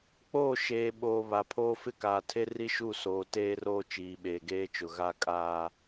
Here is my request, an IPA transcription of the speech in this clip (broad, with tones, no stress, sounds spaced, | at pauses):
k͡p oː˦˨ ʃ eː˨ ɓ oː˨ β a˨ pʰ oː˦ f ɪ˦ k aː˨ tʰ e˦ r i˦ ʃ u˦˨ s oː˨ t eː˦ r oː˦ t͡ʃ iː˨ ɓ eː˨ ɡ eː˦ t͡ʃ ʊ˨ ɣ a˦ kʼ aː˦